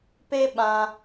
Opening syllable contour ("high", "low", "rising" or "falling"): high